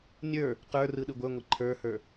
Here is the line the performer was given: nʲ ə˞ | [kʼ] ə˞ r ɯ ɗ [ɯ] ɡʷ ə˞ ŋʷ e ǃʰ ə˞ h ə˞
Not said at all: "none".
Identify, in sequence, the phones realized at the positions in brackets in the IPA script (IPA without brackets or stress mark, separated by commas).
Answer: q, ɯ